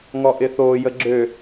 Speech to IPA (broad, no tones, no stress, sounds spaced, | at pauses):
ŋ ɔ ʔ ɪ θ oː j ə ɡ͡ǁ ø